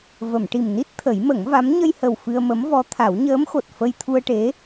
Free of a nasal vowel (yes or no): yes